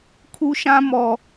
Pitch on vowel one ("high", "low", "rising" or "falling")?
high